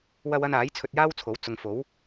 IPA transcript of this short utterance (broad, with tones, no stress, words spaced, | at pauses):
wɐ˧w ɐ˧naː˨˥j t͡sʰɵ˧t̚jaː˥wt͡sʰo˨˥w t͡sʊ˨ŋ fo˨˥w